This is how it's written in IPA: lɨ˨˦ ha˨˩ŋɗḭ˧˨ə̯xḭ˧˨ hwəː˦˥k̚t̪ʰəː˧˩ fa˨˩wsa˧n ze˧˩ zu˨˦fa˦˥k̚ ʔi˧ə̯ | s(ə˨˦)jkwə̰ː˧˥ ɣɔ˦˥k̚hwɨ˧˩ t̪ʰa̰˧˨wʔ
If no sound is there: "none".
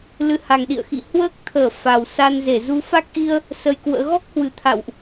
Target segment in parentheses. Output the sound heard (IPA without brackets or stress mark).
ə˧